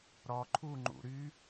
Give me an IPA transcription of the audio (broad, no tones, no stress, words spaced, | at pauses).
ɾɔ ǃʰuŋ͡ǃṵ ɾy